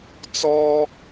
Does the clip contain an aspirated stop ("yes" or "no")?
no